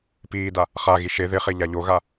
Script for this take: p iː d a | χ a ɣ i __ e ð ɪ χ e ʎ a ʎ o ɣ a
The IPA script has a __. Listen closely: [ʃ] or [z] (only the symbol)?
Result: ʃ